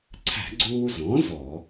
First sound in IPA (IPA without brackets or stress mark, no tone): ǀʰ